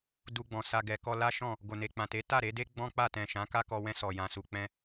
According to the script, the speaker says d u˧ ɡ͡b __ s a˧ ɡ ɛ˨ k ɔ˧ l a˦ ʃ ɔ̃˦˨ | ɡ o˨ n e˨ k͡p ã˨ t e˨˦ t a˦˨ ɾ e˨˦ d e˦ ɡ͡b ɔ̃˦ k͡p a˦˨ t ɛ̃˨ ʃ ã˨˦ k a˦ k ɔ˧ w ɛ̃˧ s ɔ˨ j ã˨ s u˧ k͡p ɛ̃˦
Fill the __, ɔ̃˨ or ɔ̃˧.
ɔ̃˨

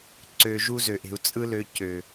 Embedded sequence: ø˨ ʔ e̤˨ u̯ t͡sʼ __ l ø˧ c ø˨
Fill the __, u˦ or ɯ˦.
ɯ˦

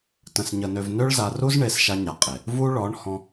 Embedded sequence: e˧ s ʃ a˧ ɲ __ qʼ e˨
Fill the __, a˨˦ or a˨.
a˨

